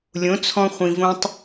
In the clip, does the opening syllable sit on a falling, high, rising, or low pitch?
rising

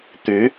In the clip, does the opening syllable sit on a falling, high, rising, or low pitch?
rising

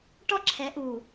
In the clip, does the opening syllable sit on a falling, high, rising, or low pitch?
high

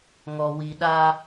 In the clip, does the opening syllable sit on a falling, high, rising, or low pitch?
low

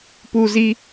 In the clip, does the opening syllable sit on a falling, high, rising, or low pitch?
high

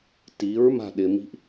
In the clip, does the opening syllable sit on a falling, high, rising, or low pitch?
rising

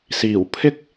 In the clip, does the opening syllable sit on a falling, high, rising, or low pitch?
low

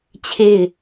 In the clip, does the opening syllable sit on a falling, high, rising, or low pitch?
falling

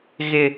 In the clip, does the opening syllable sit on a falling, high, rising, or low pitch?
high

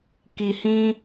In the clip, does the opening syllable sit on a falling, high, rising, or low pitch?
low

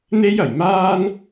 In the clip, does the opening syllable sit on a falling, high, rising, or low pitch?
high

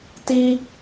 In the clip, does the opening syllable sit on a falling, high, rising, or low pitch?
high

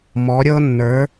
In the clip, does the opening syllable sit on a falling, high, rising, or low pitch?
rising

